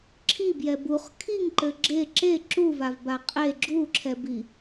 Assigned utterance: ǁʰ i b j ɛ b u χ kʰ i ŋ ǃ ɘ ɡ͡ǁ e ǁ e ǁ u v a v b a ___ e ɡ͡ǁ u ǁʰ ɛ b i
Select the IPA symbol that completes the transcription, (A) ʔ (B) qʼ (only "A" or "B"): B